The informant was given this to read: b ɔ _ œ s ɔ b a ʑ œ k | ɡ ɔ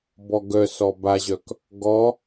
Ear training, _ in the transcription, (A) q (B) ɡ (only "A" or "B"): B